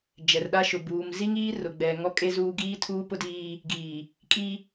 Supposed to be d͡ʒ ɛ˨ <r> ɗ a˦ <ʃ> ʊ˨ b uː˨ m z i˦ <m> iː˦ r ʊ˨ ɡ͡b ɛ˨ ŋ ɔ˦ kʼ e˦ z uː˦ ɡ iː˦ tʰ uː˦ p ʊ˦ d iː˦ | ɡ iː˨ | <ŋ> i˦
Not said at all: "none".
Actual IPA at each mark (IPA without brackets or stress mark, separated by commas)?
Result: r, ʃ, ŋ, kʼ